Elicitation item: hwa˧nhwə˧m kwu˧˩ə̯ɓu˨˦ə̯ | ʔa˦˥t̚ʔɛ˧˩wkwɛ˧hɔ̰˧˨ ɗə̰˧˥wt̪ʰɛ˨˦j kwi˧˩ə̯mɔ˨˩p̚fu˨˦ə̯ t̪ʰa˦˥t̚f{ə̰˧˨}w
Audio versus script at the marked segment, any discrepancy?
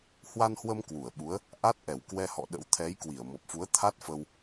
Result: yes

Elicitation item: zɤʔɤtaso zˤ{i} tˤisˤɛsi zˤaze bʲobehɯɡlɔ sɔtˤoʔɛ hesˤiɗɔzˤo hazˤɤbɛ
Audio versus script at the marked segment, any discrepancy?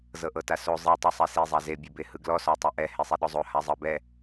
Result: no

